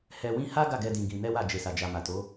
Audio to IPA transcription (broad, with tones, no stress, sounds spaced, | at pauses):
h ɛ˧ w ĩ˦ h a˦ ɡ a˦˨ ɡ ɛ˧ d ĩ˧ ɡ ĩ˧ n ɛ˦ w a˦˨ d͡ʒ e˨ s a˨ d͡ʒ a˨ m a˨ t o˨˦